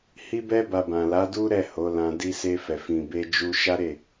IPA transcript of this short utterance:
h i˧ b ɛ˧ b a˨ b ã˨ l a˨˦ d u˦ ɾ ɛ˦˨ h o˨˦ l ã˧ d i˧ s e˧ f ɛ˨ f ĩ˨ b e˧ d͡ʒ u˧ ʃ a˦ ɾ e˦˨

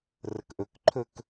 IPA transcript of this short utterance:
r ə k ʔ ɵ k ǃʰ ɵ k

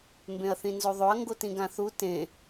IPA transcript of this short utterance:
m b ẽ ɐ̯ θ ĩ n z o ðˤ o ɐ̯ ŋ ɡ o t ĩ ɡ ã θ u t ẽ

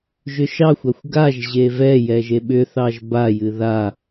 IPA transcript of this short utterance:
ʒ ʏ ʃ ɑ xʷ a xʷ ɡ a ʒ ʑ e v ɛ j ɛ ʒ e ɓ ʏ θ ɑ ʒ b a j ɨ ð a

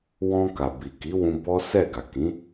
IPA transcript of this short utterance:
w ɔ̃˧ k a˨ b i˨ k i˨˦ w ũ˧ b ɔ˦ s ɛ˦˨ ɡ a˨ k ĩ˨˦

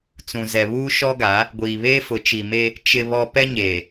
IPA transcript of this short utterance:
t͡s ũ˨ z ɛ˨ β uː˦ ʃ ɔ˦ ɡ a˨˦ | ɡʷ iː˨ β eː˦ f ʊ˨˦ t͡ʃ i˨ m e˦ | t͡ʃ ɪ˨ β ɔ˦ p ɛ˦ ɲ eː˨

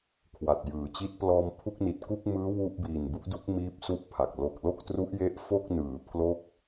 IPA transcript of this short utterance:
kʰ w a˨˩ t̚ j ɯː˨˩ t͡ɕ i˦˥ t̚ p l ɔː˧ m pʰ u˥˩ k̚ n i˨˩ t̚ k u˥˩ k̚ m ɯː˦˥ w u˥˩ ʔ b iː˨˩ n b u˦˥ ʔ d u˦˥ k̚ m iː˥˩ p̚ s u˥˩ ʔ pʰ a˨˩ k̚ l o˨˩ k̚ l o˥˩ k̚ t r u˦˥ ʔ j e˦˥ ʔ f o˥˩ k̚ n ɯː˩˦ pʰ l o˦˥ k̚

